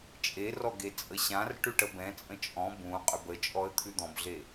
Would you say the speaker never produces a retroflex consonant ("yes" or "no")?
no